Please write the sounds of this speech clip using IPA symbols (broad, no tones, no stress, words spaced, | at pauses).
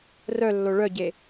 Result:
rœlːo ɭœɟe